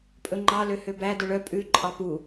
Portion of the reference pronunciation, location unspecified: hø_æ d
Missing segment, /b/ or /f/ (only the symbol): b